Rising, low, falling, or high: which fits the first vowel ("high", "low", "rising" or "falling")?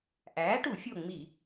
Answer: rising